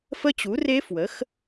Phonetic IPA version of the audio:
f ə˦˥ t͡ɕ u˩˥ r e˦˥ f w ə˩˥ x

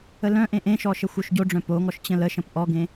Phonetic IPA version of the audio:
ə l œ̃ ʔ ẽ ʔ ẽ ʃ ɔ ʃ ə xʷ œ ʃ ɟ o ɖ͡ʐ œ̃ p o ŋ ɔ ʃ t͡ɕ ə̃ l ə ʃ ə̃ p ʔ ɔ ɡ ẽ

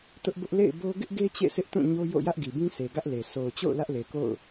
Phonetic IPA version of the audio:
t ʊ˦ ʔ b ʊ˦ ʔ l ḛ˦˨ ɪ̯ b o˦ ɡ ɪ˦ ʔ ɡ e˦ t͡ɕ ḛ˦˨ sʰ ɪ˦ ʔ t ũ˦˨ ɲ o˦ j o̰˦˨ j ä˦ ʔ ɡ i˨ b ĩ˦ s e˨ ɡ ä˦ ʔ l e˨ sʰ o˨ ʊ̯ t͡ɕ o̰˦˨ ʊ̯ l ä˦ ʔ l e˨ k o̰˦˨ ʊ̯

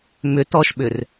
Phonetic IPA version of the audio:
m ʏ t ɔ ʃ ɓ ʏ r

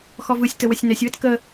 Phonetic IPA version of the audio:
x ɔ v ɯ sʲ t ə w ə sʲ n ɛ sʲ w ə t k ə

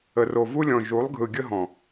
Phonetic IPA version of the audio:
ə˨ r o˨ v u˦ lʲ ɔ̃˨ ʒ u˨˦ lˠ ɡʱ ɯ˨ ɡʲ ə˦ ɦ ɔ̃˨

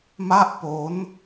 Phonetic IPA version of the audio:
m a˥˩ ʔ p o˦˥ n

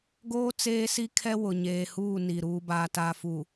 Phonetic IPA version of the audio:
ɡ oː˦ t͡s eː˦ s i˦ kʰ ɛ˦ w ʊ˨ ɲ eː˨ h uː˦˨ n i˨ ɾ uː˨ b aː˨ t a˨ f u˨

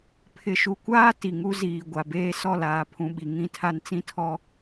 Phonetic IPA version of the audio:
pʰ ɪ˨ ʃ u˨ kʷ aː˦ t i˨ ŋ u˦ z iː˨ ɡʷ a˨ b eː˦ s ɔ˦˨ l aː˨ pʰ ũ˨ ɓ i˨ ŋ ĩ˦˨ tʰ a˦ n t͡s ĩ˦ tʰ ɔ˦

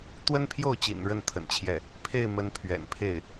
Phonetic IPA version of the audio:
t̪ w ə˥ n pʰ j o˥˩ ʊ̯ t͡ɕ ḭ˨˩ n ɻ ə˥˩ n t̪ʰ ə̰˨˩ n t͡ɕʰ j ɛ˥˩ | pʰ e˥˩ ɪ̯ m ə˧˥ n pʰ ɥ ɛ̰˨˩ n pʰ e˥˩ ɪ̯

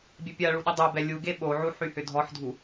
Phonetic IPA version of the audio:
bʲ ɛ pʲ a ɭ u ɗ ʏ dˤ o b ɛ lʲ u ɡ e ɓ o ʕ u ħ y h ʏ dʱ ɔ ħ dʱ u

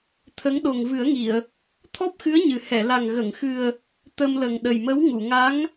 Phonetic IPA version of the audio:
t̪ʰ ə˧˥ ŋ ɗ o˨˩ ŋ v ɨ˨˩˦ ə̯ ŋ i˨˩˨ ə̯ | t̪ʰ ɔ˦˥ p̚ x ɨ˧˥ ə̯ ɲ ɨ˨˩ h ɛ˨˩˨ l a˨˩ ŋ ɣ ə˨˩˨ ŋ x ɨ˨˩ ə̯ | t̪ ə˧ m l ə˨˩ ŋ ɗ ə˨˩ j m ə˧˥ w ŋ u˨˩˨ ŋ a˧˥ ŋ

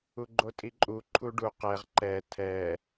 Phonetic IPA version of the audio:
u ɡ͡ǃ o tʼ i ǃʼ u ǃʰ u ɖ u q ɛ ʁ ǃ ɛ tʰ ɛ

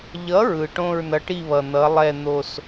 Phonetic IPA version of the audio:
ʎ ʌ˨˥ ɹ ɯ˩ ʈ õ˥˧ ɹ n ʌ˨˥ ʈ i˥˧ β ʌ˩ n̪ ʌ˨˥ lˠ ɛ˥˧ n̪ o˥˧ s

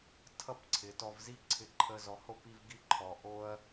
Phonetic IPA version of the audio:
tʰ ʌ˦ p ǀʰ ɪ˨ t ɔ˧ v z i˦ ǀʰ ɪ˧ ǃʰ ə˦ z ɔ˨ h o˦˨ p i˧ v ɡ i˦˨ ǃʰ ɔ˨ ʔ o˦ ɐ̯

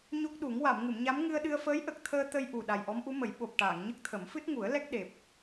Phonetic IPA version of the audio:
ɲ o˦˥ k̚ ɗ u˨˩˦ ŋ w a˨˩˨ m ŋ ɨ˨˩˨ m ɲ a˧˥ m ŋ ɨ˧ ə̯ ɗ ɨ˧ ə̯ f əː˧˥ j ʔ ə˨˩ k̚ t̪ʰ əː˧ t̪ ə˧ j ʔ u˨˩ ɗ a˨˩ j ʔ ɔ˧˥ m ʔ u˧˥ m ə˨˩˦ j ɓ o˨˩ p̚ ʈ aː˨˩˨ ŋ ɲ ə˦˥ k̚ t̪ʰ ə˨˩˦ m f ɨ˦˥ t̚ ŋ u˨˩˦ ə̯ l ɛ˦˥ k̚ ɗ e˨˩ p̚

